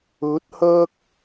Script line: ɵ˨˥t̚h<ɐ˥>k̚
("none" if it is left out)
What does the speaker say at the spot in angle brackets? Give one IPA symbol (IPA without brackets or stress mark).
ɐ˥